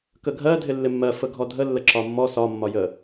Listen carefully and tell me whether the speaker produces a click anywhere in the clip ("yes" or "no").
yes